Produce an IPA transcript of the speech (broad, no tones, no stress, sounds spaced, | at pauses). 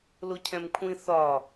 l o cʰ ɛ̃ m kʷʰ ĩ θ ɒ